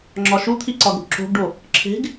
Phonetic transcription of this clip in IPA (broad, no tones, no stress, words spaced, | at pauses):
ŋ͡ǁɒʃut̪ʰi ǀɒɡɽṳǁo̤ɡɖo | ǁʰe̤ɡ